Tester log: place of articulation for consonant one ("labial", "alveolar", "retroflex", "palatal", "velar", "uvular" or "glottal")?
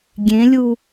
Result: velar